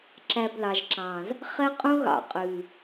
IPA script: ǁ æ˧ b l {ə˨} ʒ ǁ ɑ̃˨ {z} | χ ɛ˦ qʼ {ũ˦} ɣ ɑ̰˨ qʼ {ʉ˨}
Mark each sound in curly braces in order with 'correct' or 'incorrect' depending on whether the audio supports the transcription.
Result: incorrect, correct, correct, correct

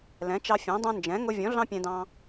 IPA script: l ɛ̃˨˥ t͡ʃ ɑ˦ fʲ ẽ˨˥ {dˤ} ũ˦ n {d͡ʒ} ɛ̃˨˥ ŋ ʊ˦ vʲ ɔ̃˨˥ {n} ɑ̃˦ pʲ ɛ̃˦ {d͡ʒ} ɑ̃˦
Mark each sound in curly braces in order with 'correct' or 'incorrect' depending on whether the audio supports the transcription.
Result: correct, correct, incorrect, incorrect

